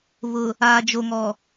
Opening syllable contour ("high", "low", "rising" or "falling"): low